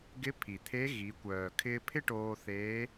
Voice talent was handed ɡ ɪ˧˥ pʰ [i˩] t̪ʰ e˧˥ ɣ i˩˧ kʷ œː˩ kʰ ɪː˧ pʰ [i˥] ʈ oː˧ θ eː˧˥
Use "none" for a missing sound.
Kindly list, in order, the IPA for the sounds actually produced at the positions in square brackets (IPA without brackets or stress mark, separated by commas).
i˩, ɪ˥